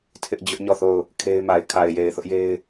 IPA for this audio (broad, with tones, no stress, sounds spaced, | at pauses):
tʰ ɪ˦ ʔ d͡ʑ ʊ˦ ʔ ɲ ɔ˦˨ θ o˦˨ ʊ̯ | kʰ e˦ ɪ̯ m a˨ ɪ̯ kʰ a˨ ɪ̯ j e˨ ɪ̯ θ ʊ˦ ʔ j e˦ ɪ̯